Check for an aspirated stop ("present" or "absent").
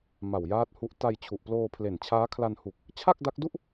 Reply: present